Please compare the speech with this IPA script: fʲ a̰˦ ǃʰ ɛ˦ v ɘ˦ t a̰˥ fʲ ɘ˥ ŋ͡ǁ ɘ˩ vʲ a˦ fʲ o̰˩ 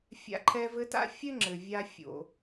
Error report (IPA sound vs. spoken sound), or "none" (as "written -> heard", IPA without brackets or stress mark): none